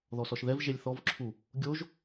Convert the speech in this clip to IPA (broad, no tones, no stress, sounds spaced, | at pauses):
ð ɔ s ɔ ʃ ð ɛ v ʒ e lʲ θ ɔ v ǁʰ u | ɡʲ o ʒ